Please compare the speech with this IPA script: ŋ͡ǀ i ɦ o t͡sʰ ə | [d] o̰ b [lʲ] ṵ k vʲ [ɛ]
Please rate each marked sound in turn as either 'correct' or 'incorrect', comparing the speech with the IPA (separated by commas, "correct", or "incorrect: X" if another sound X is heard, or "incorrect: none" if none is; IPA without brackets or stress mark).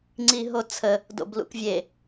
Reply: correct, incorrect: l, incorrect: e